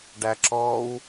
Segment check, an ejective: absent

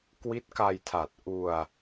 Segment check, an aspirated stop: present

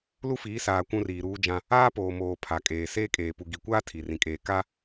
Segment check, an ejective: present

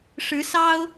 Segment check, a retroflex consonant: present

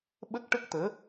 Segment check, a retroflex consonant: present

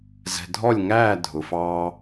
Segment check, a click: absent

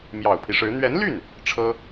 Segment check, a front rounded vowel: present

